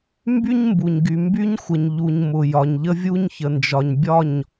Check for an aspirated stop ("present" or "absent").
absent